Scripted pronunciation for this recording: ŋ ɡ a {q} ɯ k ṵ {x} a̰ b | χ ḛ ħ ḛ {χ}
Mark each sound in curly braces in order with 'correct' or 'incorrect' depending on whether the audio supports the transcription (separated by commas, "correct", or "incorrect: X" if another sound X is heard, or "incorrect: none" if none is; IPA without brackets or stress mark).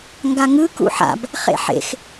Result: incorrect: ŋ, incorrect: ħ, incorrect: x